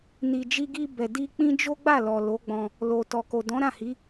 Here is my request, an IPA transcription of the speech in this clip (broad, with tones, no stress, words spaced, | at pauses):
ni˨d͡ʒi˧ɡi˧ bɛ˨di˧k͡pĩ˦ d͡ʒo˦ɡ͡ba˦˨ lɔ˨lo˨˦ɡ͡bɔ̃˧ | lo˨ tɔ˨ko˨dɔ̃˨˦ ɾã˦˨hi˨˦